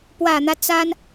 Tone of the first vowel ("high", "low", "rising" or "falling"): low